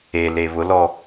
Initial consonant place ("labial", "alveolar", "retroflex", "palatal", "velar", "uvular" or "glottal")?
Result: alveolar